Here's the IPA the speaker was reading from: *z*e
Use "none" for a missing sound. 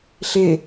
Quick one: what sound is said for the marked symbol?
ɬ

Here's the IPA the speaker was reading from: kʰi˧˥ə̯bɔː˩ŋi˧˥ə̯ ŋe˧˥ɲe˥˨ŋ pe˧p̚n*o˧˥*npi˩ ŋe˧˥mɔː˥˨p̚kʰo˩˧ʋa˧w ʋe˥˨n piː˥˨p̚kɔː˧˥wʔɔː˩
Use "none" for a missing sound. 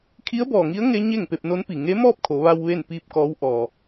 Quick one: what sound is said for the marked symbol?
o˧˥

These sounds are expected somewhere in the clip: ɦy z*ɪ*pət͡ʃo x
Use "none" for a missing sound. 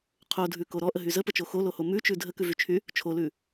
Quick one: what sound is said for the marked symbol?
ə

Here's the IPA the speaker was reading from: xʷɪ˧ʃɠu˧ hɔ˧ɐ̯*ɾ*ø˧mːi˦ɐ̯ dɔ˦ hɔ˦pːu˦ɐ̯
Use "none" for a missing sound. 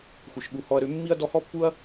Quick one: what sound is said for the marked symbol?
ɾ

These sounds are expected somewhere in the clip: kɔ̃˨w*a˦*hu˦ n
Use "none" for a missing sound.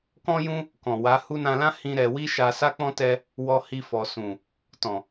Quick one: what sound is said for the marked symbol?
a˨˦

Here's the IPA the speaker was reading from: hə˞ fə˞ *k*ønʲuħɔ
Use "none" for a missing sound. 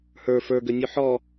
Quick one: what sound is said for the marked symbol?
ɡ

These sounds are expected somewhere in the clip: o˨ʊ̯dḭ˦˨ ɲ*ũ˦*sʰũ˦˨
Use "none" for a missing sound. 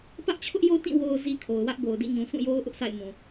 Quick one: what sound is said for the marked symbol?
ũ˨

